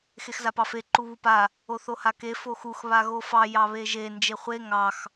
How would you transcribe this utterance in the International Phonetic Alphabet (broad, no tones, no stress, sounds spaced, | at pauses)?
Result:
x e x z a p ɑ f e ǃ u β u p a | o θ o h a k e f o x u x β a ɣ o f ɑ j ɑ β e ʒ e n d͡ʒ e χʷ e ŋ ɑ x